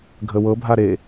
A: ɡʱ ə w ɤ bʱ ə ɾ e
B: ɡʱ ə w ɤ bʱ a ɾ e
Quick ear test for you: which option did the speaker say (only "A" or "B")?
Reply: B